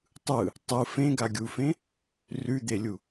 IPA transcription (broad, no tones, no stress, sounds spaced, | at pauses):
tˤ ɯ | tˤ ɯ f ẽ ɡ a ɡʲ u f ẽ | r ʉ d̪ e lʲ u